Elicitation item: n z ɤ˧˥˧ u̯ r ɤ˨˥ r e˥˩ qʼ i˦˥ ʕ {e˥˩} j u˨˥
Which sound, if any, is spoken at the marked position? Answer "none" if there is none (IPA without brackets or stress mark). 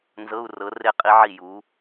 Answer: i˥˩